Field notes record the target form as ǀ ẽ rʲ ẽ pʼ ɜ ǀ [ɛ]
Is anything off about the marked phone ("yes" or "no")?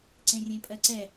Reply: no